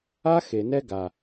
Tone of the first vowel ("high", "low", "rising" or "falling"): high